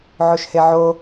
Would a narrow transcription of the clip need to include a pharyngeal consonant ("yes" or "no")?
yes